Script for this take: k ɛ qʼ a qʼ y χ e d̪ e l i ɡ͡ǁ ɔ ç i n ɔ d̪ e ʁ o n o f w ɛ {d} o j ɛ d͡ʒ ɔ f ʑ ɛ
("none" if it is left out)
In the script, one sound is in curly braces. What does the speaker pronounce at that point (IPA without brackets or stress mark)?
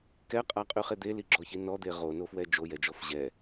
d͡ʒ